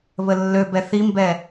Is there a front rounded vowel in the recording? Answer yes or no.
yes